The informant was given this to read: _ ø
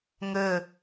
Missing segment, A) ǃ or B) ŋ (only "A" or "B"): B